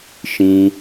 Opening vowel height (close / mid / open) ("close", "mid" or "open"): close